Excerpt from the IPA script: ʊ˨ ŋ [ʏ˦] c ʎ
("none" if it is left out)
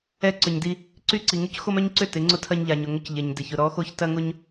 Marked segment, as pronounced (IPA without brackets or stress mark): ʏ˦